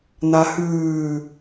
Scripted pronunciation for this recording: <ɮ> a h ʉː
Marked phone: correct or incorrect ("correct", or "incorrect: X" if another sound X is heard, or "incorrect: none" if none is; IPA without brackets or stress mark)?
incorrect: n̪